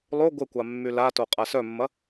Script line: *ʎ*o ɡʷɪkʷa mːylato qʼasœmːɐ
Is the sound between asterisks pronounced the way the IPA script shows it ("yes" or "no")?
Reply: no